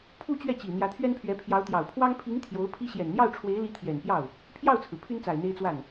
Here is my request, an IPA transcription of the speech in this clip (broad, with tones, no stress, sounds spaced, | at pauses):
pʰ u˥ t͡ɕ ɥ ɛ˥˩ t͡ɕ i˨˩ n̪ j ä˧˥ t̪ʰ ɥ ɛ˥ n pʰ ɥ ɛ˧˥ pʰ j ɑ˧˥ ʊ̯ t̪ j ɑ˨˩ ʊ̯ pʰ w ɑ˥ ŋ pʰ i˧˥ ŋ t̪ʰ j o˧˥ ʊ̯ pʰ i˥ ɕ j ɛ˨˩ n n̪ j ɑ˥˩ ʊ̯ ʈ͡ʂʰ w e˧˥ ɪ̯ l i˧˥ t̪ʰ j ɛ˨˩ n p j ɑ˥˩ ʊ̯ | pʰ j ɑ˥˩ ʊ̯ t͡sʰ ɹ̩˩ pʰ y˥ n t͡s a˨˩ ɪ̯ n̪ e˥ ɪ̯ t͡s w a˥˩ n